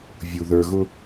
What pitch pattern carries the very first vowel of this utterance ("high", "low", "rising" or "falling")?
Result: low